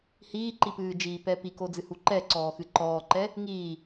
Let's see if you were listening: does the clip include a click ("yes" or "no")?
yes